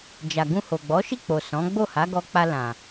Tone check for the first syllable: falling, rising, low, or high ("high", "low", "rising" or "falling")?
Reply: low